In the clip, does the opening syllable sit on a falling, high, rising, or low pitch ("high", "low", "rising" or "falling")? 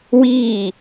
falling